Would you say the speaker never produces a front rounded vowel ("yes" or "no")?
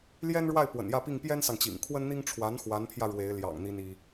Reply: yes